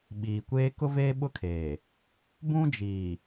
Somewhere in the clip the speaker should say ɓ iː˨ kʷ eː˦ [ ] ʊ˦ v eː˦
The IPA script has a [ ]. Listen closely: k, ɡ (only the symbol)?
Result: k